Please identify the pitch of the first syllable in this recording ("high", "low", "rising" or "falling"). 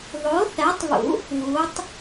rising